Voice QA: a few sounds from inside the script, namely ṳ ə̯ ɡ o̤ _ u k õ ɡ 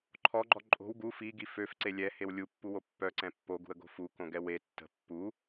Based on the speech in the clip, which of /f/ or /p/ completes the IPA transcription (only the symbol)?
f